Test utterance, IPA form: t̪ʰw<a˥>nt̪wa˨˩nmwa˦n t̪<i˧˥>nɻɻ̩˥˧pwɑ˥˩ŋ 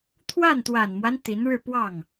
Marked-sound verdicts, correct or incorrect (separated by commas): incorrect, correct